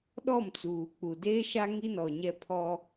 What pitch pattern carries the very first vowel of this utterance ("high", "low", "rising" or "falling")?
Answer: falling